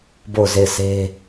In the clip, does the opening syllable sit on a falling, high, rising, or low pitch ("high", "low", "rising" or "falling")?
falling